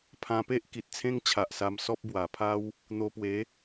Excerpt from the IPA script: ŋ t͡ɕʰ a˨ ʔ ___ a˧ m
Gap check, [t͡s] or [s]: s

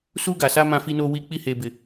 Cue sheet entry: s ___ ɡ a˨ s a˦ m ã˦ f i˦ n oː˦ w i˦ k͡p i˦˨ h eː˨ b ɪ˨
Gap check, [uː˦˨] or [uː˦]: uː˦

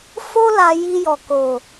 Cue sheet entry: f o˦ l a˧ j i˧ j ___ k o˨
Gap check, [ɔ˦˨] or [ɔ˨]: ɔ˨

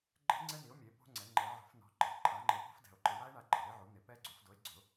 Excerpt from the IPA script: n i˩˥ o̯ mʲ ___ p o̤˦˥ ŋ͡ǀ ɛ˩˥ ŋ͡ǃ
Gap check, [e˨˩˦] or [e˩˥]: e˩˥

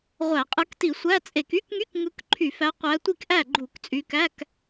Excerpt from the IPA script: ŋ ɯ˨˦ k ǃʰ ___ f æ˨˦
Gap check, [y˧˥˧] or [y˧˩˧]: y˧˩˧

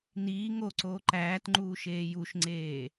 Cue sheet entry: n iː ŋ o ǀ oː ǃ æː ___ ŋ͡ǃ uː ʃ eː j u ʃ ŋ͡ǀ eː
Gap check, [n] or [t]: t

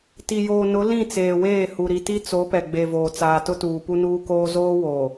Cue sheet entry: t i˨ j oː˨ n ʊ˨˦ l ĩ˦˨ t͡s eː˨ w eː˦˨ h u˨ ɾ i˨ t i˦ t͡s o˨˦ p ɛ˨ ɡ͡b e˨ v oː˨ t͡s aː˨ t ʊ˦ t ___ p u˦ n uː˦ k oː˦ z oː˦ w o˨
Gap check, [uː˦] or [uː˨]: uː˨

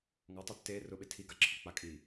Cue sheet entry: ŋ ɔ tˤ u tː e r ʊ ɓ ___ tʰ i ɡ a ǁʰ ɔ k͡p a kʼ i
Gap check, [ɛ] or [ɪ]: ɪ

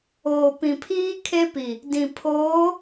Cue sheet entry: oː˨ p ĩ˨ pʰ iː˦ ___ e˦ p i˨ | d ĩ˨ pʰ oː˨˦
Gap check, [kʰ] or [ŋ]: kʰ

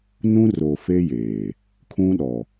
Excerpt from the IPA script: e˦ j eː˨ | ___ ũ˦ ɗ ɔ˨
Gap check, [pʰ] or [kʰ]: kʰ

